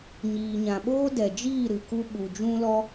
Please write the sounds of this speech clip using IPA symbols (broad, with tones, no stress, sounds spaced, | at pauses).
ɲ iː˨ ɲ ã˨ ɓ oː˦ d ɛ˨ d͡ʒ iː˦˨ ɾ ɨ˨ k u˦ ɓ u˨ d͡ʒ ũ˦ l ɔ˦